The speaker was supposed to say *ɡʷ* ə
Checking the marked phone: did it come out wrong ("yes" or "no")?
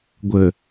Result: no